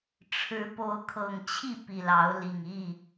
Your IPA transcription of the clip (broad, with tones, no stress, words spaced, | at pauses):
ʈ͡ʂʰɻ̩˨˦ po˨˦ʊ̯kʰɤ˨˩ŋt͡ɕʰi˥˨ pi˨˩lɑ˨˦ʊ̯li˨˩ŋ i˥˨